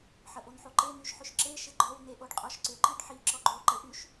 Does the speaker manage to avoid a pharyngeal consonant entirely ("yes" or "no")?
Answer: no